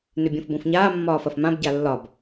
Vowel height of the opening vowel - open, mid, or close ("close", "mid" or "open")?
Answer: close